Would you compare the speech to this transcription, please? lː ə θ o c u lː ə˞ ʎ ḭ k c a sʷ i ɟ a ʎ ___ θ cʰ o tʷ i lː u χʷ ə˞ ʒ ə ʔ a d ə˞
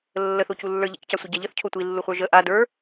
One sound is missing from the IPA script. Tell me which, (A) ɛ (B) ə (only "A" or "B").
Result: B